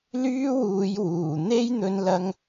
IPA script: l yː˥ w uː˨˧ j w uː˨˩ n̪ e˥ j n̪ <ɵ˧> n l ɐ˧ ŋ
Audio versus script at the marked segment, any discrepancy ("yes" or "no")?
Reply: no